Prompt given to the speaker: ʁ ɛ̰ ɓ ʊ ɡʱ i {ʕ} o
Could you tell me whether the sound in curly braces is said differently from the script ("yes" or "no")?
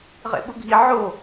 no